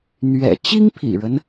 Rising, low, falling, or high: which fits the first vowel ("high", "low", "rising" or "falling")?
low